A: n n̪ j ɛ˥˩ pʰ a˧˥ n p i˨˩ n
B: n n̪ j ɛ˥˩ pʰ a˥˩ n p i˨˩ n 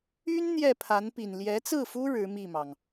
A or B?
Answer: A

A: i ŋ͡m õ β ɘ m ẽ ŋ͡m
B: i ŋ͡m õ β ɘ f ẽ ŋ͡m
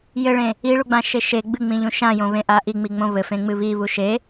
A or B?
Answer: B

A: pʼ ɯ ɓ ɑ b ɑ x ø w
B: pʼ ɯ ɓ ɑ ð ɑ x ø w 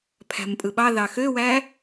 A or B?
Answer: B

